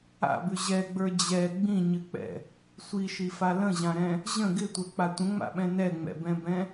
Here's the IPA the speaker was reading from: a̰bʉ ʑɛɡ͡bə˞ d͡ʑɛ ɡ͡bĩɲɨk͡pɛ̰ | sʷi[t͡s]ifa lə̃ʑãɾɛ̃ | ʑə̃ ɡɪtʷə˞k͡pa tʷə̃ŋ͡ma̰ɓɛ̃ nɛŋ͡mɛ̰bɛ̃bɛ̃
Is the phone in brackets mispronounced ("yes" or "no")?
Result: yes